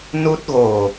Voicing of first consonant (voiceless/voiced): voiced